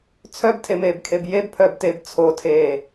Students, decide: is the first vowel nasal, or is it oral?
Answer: oral